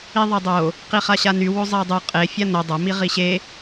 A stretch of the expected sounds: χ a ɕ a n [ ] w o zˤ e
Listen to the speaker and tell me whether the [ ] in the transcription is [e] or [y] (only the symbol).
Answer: y